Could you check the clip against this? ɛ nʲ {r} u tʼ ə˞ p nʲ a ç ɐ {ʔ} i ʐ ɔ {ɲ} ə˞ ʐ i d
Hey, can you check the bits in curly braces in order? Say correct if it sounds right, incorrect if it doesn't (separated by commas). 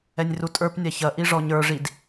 correct, correct, correct